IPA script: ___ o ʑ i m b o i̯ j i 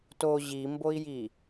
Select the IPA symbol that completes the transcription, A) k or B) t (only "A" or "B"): B